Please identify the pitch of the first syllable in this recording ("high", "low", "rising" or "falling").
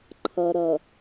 low